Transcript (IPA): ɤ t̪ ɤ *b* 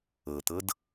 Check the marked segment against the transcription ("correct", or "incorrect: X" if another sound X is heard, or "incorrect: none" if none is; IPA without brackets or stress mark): incorrect: d